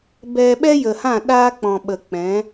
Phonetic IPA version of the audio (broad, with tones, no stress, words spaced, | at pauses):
bɛ˧ ɓɛ˦jə˨hã˦˨ ɗaː˧ k͡pɔ̃˨ɓə˨ k͡pɛ̃˨˦